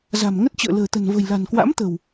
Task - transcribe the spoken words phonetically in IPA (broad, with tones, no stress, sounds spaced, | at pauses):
z a̤˨˩ m ŋ ə˦˥ t̚ t͡ɕ ə̰ː˧˨ l ə̤ː˨˩ t̪ ə̤˨˩ n v ə̤˨˩ j l a̤˨˩ n k w a̰˧˥ m t̪ ə̤˨˩ w